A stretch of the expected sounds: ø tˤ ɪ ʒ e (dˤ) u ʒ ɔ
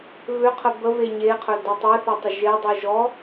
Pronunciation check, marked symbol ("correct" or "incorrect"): correct